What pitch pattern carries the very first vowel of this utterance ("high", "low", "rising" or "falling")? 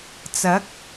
rising